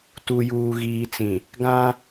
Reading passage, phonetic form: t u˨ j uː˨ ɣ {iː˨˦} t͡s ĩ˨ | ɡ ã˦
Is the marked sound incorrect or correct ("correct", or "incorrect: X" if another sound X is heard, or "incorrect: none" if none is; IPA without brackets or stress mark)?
incorrect: iː˨